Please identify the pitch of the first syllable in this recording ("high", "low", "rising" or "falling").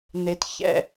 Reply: high